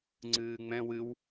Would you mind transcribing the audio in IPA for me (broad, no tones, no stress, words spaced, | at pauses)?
ŋ͡ǀɨːŋ͡mɛ̃ wɨw